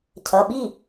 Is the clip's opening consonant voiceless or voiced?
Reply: voiceless